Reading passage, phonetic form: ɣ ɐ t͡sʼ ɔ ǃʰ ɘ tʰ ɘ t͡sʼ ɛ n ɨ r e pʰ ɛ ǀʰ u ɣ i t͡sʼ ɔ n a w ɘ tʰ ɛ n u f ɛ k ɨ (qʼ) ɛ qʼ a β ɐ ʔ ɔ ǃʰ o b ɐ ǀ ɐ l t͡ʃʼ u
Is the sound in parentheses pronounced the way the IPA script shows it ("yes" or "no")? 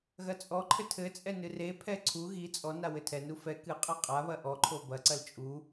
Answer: yes